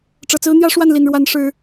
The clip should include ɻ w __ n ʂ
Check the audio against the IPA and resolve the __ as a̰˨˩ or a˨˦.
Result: a˨˦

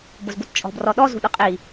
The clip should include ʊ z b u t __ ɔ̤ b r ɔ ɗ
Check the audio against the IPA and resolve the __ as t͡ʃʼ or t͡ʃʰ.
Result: t͡ʃʼ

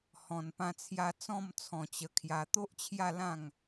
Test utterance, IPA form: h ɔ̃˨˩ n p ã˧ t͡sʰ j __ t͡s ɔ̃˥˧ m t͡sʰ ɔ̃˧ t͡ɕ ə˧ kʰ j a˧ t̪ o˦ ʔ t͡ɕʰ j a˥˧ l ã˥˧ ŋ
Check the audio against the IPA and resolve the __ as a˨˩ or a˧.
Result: a˧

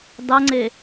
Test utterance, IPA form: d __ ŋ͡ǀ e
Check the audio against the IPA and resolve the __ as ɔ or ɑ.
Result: ɑ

